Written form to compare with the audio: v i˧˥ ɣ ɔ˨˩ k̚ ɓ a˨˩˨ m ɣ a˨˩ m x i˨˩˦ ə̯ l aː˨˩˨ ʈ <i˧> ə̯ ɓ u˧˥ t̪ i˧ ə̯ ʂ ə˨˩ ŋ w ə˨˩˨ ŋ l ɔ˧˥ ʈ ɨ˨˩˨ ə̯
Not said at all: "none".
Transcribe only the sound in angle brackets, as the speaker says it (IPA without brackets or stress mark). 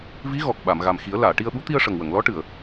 i˧